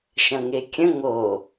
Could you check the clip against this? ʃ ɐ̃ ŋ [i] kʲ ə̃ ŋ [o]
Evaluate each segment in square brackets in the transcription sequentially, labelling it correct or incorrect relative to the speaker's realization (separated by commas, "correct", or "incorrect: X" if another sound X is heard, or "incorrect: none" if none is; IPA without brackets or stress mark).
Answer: incorrect: e, correct